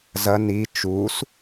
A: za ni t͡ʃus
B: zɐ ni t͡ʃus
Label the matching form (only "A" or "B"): B